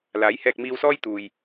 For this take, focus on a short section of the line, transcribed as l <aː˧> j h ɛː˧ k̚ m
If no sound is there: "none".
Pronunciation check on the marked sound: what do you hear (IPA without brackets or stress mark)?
aː˨˥